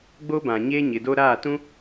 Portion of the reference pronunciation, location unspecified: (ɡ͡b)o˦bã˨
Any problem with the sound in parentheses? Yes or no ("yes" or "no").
no